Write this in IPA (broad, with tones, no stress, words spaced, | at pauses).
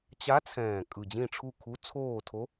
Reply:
t͡ɕa˧˥t͡sʰɛ̃ː˨˩ kʼɯ˨˩d͡ʑĩ˦˨ʈ͡ʂʰu˦˨kʰu˧˥ t͡sʰoː˦˨tʰo˧˥